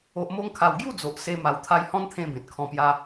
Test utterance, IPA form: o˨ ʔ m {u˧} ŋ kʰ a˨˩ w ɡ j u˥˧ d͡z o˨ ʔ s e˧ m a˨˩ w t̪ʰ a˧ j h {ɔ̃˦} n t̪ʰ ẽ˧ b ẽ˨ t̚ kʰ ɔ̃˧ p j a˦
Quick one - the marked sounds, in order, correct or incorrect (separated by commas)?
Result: incorrect, correct